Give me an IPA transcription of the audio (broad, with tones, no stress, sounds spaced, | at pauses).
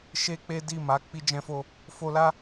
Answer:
ʃ e˦ k͡p e˦ d i˦˨ m a˨˦ k͡p i˦ d͡ʒ ɛ̃˦ f o˦ | f o˧ l a˦